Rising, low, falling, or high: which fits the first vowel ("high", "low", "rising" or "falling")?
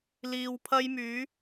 low